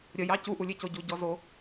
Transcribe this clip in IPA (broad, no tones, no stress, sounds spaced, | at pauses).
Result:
ɾʲ ə j ɑ c u ʔ u lʲ e c o ɟ u ɟ ɔ z o